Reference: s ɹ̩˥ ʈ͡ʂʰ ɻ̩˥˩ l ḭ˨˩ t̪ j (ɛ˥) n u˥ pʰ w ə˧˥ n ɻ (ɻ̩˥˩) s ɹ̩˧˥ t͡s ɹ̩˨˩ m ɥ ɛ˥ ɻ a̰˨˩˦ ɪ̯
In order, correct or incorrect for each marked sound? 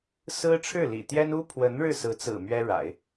correct, correct

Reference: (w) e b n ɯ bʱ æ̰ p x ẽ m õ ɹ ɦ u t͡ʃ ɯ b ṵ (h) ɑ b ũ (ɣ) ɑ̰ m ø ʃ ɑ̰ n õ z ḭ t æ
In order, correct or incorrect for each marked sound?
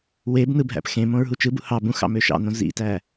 correct, correct, incorrect: x

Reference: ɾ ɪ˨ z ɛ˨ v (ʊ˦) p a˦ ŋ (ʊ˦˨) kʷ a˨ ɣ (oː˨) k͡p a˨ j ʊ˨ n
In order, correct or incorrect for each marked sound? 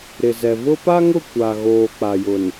correct, correct, correct

